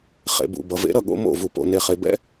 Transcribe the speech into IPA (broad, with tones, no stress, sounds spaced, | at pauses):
χ ḛ˩ b ṵ˩ b ʌ˩ v ḛ˩˥ ɾ ʌ˥˩ ɠ o̰˧ m o̰˥˩ v u˩ p o̰˩ n e˩ χ e˩ b ɛ̰˥